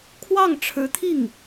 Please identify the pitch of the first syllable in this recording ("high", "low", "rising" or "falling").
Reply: falling